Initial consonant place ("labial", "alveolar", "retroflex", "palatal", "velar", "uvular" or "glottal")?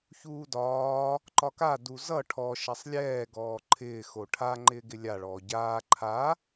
palatal